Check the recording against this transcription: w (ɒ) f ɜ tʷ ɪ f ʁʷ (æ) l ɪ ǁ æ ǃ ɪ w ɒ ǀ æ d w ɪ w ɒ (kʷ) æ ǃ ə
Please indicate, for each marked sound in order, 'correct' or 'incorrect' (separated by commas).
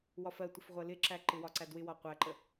correct, incorrect, incorrect